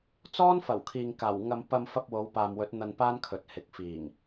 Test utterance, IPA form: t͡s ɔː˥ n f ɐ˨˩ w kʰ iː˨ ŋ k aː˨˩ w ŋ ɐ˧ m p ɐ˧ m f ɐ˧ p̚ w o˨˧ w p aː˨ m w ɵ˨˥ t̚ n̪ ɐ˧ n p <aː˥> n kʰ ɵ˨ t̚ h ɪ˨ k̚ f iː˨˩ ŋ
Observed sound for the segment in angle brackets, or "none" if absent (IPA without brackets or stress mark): aː˥